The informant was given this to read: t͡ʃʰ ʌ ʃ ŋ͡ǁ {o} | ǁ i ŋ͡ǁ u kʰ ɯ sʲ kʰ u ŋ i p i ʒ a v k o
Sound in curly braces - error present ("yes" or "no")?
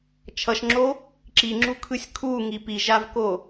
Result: no